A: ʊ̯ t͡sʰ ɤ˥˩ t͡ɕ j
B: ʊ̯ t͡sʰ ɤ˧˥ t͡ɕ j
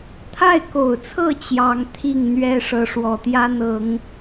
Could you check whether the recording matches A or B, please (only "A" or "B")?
A